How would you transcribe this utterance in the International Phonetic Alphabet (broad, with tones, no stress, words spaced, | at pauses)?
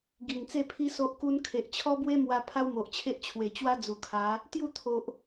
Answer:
ɡi˨˩ŋt͡se˥˧pʰi˦ so˦ʔku˦n kʰe˨ʔt͡ɕʰɔ˦bwe˦mwa˧ pʰa˦wmo˨ʔt͡ɕʰe˦ʔ t͡ɕʰwe˨˩t͡ɕwa˦ d͡zu˨˩kʰa˨˦ | t̪ju˥˧t̪ʰo˨ʔ